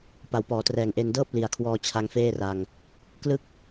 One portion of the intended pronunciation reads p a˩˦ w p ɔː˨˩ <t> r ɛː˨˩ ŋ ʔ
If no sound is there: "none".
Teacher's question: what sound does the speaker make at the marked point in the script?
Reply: t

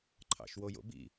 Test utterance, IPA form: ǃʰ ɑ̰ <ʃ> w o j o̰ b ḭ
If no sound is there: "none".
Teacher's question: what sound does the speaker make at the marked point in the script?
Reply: ʃ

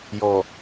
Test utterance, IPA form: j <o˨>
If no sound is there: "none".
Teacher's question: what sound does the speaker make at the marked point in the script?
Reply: ɔ˨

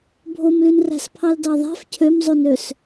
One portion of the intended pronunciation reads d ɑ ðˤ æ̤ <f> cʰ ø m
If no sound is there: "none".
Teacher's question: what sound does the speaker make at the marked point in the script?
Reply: f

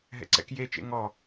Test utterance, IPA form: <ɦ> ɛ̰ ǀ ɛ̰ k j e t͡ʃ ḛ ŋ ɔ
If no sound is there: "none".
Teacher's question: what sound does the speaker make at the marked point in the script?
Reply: ɦ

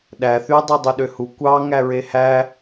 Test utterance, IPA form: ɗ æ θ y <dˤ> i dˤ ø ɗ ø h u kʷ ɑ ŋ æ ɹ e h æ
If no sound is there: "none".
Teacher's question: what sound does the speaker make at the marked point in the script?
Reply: dˤ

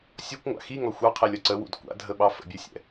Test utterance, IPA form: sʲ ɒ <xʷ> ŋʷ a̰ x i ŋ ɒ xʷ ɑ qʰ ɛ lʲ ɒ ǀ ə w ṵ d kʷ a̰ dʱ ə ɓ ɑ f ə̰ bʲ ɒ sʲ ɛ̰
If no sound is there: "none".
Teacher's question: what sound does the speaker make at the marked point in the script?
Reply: kʷ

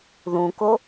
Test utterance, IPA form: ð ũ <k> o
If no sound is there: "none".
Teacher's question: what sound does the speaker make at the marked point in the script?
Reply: k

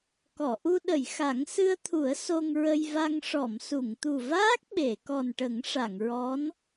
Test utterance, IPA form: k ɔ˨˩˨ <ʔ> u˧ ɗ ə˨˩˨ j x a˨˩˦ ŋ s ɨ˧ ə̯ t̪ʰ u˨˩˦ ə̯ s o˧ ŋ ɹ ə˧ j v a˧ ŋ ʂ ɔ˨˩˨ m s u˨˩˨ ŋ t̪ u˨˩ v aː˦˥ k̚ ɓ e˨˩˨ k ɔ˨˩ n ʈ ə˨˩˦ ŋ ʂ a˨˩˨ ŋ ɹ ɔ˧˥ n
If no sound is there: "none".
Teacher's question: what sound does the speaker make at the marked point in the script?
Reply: ʔ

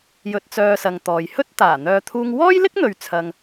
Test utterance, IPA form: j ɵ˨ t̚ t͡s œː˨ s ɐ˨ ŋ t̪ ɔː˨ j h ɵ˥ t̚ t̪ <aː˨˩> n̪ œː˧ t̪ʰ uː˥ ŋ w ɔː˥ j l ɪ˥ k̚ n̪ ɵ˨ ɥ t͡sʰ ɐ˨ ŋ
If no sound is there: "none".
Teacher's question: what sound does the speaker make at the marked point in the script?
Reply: aː˨˩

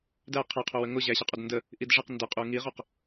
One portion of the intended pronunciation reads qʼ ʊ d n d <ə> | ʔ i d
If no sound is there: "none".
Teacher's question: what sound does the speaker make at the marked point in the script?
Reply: ə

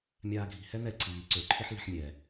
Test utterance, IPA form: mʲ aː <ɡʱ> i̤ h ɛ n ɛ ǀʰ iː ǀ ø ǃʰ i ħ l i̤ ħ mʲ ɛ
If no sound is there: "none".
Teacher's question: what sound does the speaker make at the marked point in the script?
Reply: ɡʱ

